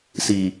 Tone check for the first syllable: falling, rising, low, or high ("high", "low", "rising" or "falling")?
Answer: low